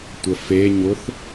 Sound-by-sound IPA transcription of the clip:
tʷ ə f e ɲ ʊ θ

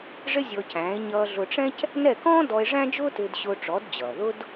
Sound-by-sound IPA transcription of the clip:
ʐ ɪ˥ zʲ ɔ˧ c æ̃ː˩˥ e̯ ɲ ʌː˧ ɮ ʊ˧ ʈ͡ʂ ɛ̃˥ c | n ɛ˥˩ k ɔ̃ː˥ d ɔ˧ e̯ ʐ æ̃˥ d͡ʒ ʊː˥ t ɪː˧ d ɕ ʊː˧ ʈ͡ʂ ɔ˩˥ d d͡ʑ ʌː˩ ð ʊ˥ d

